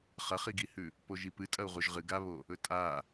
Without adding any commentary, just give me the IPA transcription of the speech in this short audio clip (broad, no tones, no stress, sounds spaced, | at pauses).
χ ɐ χ i ɡ i h ʉ | p o ʒ i p ɨ tʼ ɐ u̯ ʁ u ʒ ʁ ɨ ɡ a β o | ɵ tʼ a